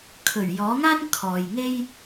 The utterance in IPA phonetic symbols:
kʰɵ˨˩ɥjɔː˨˥ŋaː˥n kʰɔː˨jŋe˥j

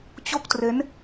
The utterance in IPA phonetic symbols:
t͡ɕo˥˩k̚tre˦˥n

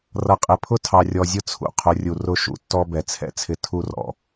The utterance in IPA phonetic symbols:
rʌ˨qʼɪ˨pʰʊ˦ tʰɑ˨rʲɔ˨zʲʊ˦t͡sʰṵ˨ qʰʊ˨˦rʲu˨ rʊ˦ʃṵ˨tːɔ˦ bɛ˨t͡sʰɛ̰˦t͡sʰɪ˦ tʰu˦rɔ̰˨

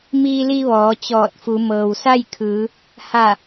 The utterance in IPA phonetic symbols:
miː˧li˧ ʋɔː˩˧t͡ɕɔː˧˩t̚fu˩˧ mɤː˩wsa˥˨jkʰɯː˩˧ | ha˧˩

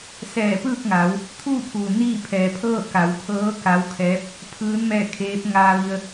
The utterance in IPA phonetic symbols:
sɛː˧˩pɯː˥˨k̚ŋa˩˧w | t̪ʰuː˥˨pʰuː˩ niː˥˨pʰɛː˩˧pʰɤː˥˨ ka˩˧wkʰɤː˧˥ ka˧˥wkʰɛː˧˥p̚ | pʰɯː˧˥n mɛː˥˨kʰeː˧˥p̚ ŋaː˧ʋi˧ə̯

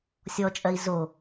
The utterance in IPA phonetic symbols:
sʲɔt͡ʃʼɜi̯ zo

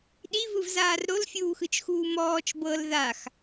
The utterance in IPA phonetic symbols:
ɗivɯvzaːr ɾolfʲuːxɯt͡ʃxuː mɔːt͡ʃ bɤl ðax

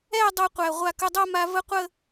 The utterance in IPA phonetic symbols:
ɛ˥˧ dˤɤ˥˧qʷæ˧˩ ʁʷa˧˩kə˧dˤo˥˧ma˧ və˥˧qʷə˥˧

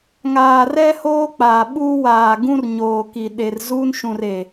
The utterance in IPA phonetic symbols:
ŋaː˨rɛ˦ hoː˦k͡paː˨ɓuː˦ waː˨ɡũ˦r ɲoː˨ki˨ ɗe˨rzuː˦nʃũ˨re˨

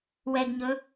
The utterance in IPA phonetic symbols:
wɛɡɲɵ

